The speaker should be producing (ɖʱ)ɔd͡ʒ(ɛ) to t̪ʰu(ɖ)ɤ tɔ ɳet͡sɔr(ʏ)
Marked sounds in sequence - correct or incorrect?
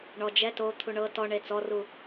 incorrect, correct, incorrect, incorrect

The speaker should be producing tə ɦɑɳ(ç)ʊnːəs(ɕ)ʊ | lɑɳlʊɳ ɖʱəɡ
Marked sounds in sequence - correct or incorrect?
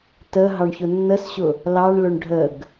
correct, correct

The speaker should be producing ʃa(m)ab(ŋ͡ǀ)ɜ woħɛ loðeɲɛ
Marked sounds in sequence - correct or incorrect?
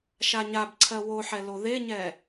incorrect, incorrect

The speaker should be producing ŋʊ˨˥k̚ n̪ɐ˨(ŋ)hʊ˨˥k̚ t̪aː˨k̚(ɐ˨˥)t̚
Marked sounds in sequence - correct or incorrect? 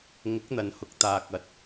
incorrect, correct

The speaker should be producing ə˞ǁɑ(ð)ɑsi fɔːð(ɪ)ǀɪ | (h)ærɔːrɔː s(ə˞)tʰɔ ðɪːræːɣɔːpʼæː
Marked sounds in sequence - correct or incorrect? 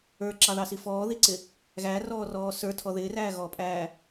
correct, incorrect, incorrect, correct

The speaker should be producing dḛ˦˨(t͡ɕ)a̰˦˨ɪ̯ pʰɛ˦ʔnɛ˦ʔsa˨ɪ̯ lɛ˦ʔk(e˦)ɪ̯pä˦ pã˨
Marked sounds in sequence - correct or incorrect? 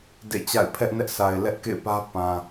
correct, incorrect

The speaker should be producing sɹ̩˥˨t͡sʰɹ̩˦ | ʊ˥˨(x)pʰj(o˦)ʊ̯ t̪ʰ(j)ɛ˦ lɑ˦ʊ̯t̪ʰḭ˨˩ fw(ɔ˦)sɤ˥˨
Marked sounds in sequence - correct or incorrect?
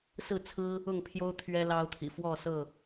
incorrect, correct, incorrect, incorrect

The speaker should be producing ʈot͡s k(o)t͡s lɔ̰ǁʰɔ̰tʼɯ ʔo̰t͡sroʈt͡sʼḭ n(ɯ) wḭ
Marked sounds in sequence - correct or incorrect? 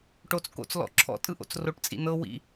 incorrect, incorrect

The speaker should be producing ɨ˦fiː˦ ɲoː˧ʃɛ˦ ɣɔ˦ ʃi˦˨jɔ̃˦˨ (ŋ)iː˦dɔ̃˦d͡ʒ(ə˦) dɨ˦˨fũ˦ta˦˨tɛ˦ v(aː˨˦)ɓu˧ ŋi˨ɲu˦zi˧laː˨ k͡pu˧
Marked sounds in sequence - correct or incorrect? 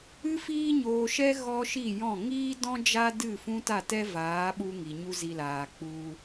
correct, incorrect, correct

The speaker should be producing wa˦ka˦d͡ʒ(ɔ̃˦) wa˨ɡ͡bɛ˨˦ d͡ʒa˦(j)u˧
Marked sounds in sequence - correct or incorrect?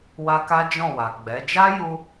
incorrect, correct

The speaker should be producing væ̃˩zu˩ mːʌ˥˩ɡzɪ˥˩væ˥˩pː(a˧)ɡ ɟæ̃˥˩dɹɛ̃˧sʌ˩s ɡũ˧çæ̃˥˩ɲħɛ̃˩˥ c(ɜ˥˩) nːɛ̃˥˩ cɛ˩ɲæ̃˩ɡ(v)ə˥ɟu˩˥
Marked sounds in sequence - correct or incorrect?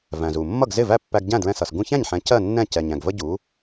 incorrect, correct, correct

